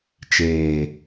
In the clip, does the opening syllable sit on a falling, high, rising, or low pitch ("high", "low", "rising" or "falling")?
low